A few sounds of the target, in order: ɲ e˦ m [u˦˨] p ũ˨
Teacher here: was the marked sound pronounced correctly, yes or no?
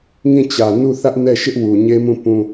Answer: no